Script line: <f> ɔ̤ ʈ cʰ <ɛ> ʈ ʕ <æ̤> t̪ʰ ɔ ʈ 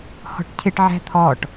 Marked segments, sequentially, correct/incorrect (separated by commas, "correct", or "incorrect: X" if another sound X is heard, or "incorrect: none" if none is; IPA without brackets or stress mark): incorrect: h, incorrect: ɪ, correct